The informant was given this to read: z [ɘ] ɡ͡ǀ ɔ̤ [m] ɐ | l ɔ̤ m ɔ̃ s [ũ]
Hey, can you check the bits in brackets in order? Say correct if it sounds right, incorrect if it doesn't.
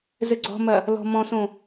correct, correct, incorrect: õ

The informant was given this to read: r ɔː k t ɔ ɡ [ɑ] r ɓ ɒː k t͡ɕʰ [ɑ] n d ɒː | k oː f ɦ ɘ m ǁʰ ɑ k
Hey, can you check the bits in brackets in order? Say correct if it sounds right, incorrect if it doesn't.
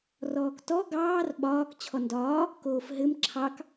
incorrect: ɑː, incorrect: ɔ

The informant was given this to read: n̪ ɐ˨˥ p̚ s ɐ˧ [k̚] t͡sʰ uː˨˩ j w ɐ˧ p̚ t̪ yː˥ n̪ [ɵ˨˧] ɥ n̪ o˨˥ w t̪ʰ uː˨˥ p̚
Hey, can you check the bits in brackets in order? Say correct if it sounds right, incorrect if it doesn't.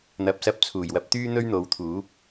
incorrect: p̚, incorrect: ɵ˥

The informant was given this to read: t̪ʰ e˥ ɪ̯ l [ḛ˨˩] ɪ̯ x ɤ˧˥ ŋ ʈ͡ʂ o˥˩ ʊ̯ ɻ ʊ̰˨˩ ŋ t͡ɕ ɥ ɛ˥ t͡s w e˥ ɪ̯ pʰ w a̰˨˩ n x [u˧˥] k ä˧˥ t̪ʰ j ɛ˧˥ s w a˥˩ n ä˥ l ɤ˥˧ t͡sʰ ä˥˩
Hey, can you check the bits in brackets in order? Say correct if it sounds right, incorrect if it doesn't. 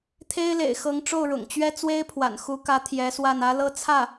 correct, correct

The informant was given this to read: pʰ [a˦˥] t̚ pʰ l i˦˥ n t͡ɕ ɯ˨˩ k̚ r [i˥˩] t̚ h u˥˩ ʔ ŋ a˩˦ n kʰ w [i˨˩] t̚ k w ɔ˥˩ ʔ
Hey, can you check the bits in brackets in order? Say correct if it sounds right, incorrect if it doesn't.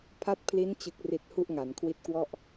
correct, incorrect: i˨˩, incorrect: i˦˥

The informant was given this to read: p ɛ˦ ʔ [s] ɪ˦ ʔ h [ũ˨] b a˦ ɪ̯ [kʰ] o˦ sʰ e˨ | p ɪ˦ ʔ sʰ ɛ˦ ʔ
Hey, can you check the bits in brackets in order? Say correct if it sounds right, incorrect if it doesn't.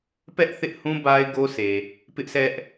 incorrect: θ, incorrect: ũ˦, incorrect: ɡ

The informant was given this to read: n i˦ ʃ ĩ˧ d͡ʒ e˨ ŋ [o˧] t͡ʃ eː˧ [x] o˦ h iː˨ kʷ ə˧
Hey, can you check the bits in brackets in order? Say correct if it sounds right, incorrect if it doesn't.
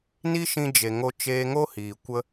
correct, incorrect: ŋ

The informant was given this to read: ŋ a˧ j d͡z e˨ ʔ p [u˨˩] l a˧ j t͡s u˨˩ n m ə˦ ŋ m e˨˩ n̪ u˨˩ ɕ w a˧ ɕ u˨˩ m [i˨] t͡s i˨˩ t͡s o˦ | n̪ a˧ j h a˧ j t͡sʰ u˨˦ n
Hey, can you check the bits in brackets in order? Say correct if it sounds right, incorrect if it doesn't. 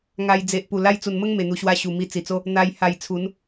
correct, incorrect: i˧

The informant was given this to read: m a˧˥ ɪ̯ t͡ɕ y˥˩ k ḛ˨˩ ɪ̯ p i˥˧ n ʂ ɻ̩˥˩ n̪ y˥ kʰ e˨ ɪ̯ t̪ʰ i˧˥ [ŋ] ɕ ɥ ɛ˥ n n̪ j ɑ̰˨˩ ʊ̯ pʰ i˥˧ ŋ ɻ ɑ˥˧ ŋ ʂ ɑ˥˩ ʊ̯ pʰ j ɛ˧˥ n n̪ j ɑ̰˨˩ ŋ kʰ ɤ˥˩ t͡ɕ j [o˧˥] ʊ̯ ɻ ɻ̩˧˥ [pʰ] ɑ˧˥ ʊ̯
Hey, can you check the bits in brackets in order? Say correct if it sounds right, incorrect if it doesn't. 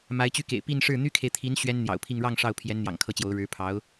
incorrect: n, correct, correct

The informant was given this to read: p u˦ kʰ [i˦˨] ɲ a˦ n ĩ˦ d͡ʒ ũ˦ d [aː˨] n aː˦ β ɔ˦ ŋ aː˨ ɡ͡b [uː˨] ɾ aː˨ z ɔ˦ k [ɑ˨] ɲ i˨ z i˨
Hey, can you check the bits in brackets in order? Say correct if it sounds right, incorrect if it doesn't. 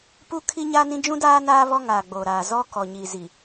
incorrect: i˦, incorrect: aː˦, incorrect: oː˨, incorrect: ɔ˨

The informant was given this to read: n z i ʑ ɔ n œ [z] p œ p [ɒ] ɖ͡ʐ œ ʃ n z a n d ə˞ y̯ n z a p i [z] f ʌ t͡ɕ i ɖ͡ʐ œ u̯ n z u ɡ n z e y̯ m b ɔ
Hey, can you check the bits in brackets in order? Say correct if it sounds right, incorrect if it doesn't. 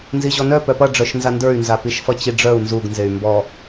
incorrect: none, incorrect: ʌ, incorrect: ʃ

